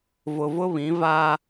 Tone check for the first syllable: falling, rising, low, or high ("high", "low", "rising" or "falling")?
low